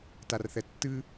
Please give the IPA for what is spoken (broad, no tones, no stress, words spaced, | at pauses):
tarθɛtːɨ